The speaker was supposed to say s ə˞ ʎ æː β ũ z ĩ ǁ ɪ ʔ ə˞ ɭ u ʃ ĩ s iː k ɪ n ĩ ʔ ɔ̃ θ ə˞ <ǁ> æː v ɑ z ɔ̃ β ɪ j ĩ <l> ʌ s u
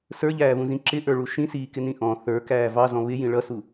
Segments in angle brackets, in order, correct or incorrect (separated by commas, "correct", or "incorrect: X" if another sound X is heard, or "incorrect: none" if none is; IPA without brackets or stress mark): incorrect: k, incorrect: ɭ